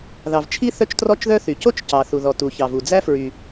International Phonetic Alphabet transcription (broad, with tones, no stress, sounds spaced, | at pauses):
ð ɑ˩ v t͡ʃʰ i˥ θ œ˥ t͡ʃ t r ɔ˥ t͡ʃ ð œ˥ θ y˩ c o˥ t͡ʃ c ɑ˩ θ u˩ ð ɔ˩ t u˩ ç ɑ˩ v u˩ d͡z æ˥ f ɹ y˩